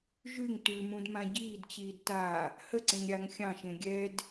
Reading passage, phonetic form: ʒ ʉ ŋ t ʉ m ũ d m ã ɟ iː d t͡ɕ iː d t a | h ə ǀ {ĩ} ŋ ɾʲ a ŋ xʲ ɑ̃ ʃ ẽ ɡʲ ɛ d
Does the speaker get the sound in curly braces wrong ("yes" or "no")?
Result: yes